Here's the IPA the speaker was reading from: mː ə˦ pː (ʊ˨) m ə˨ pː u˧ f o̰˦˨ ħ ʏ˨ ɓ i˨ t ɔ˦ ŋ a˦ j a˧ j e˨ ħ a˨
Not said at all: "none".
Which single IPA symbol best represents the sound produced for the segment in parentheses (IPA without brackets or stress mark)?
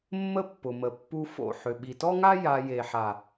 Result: ʊ˨